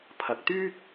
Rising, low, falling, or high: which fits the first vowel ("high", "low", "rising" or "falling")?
low